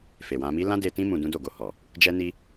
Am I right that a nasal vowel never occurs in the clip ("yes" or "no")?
no